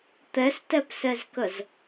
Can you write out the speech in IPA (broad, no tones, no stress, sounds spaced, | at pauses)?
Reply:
t̪ ɛ s t ɛ p s ɛ z k ə z